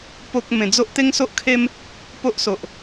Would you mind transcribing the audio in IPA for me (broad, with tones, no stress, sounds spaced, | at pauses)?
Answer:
p o˦ k̚ m ẽ˨˩ d͡z o˦ ʔ t̪ e˦ ŋ s o˦ ʔ kʰ e˦ m | p o˦ ʔ s o˨ ʔ